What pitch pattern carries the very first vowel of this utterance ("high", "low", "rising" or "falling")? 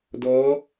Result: rising